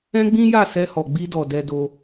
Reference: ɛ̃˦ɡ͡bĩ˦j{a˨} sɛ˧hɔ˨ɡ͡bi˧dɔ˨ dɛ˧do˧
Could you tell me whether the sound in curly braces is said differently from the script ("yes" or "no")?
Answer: yes